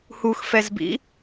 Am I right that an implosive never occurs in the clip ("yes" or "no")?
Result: yes